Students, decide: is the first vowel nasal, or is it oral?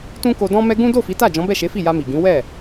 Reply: nasal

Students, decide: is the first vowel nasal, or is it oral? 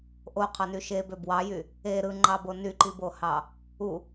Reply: oral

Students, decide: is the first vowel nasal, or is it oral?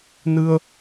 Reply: oral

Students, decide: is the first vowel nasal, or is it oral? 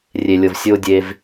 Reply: oral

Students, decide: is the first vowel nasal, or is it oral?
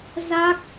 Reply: oral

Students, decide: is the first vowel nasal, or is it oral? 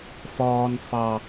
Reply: oral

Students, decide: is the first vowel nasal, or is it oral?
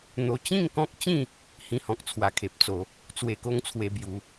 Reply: oral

